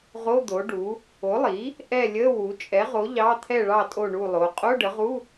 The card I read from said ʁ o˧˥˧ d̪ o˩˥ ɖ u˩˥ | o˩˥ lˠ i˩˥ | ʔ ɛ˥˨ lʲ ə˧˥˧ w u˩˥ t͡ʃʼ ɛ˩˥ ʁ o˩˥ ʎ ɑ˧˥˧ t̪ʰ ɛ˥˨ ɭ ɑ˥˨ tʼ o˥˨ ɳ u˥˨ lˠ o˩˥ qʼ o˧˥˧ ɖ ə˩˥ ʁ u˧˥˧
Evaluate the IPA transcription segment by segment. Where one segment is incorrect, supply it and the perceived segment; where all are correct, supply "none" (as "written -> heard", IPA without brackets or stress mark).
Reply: none